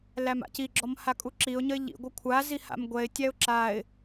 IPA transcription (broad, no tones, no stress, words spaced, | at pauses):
læma̰ciɡ͡ǁɔm hakʼuǁiʊ̯ɲəɪ̯ ʎḭɡʷə kʷʰazi ha̰mɡʷɛɪ̯tʲæʊ̯ ǁaɪ̯